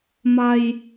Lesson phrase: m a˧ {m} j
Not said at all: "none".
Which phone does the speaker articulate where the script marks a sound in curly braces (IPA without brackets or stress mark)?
none